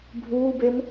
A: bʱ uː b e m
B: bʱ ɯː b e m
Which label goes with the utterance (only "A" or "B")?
A